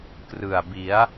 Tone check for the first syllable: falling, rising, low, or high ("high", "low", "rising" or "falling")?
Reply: low